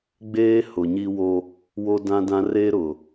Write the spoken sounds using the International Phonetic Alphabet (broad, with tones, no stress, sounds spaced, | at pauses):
ɡ͡b eː˦ h ʊ˨ ɲ i˦ w o˦ | w o˦ d ã˦ d ã˦ r e˦ ɾ ʊ˨